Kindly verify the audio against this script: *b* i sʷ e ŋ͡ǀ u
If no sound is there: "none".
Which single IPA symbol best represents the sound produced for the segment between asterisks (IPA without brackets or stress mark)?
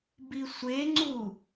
b